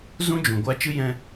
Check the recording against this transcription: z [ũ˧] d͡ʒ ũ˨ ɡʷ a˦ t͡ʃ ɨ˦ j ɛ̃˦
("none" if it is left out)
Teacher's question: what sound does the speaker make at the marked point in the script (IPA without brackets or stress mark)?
ũ˦